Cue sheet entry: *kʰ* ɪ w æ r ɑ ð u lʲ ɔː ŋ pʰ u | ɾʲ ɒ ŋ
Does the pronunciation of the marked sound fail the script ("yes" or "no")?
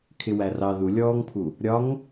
no